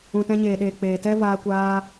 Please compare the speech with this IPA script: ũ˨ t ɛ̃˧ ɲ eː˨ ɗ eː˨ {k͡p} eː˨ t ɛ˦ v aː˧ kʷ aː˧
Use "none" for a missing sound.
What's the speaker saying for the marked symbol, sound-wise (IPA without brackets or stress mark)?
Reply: k͡p